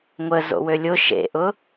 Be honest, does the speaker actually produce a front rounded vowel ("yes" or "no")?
yes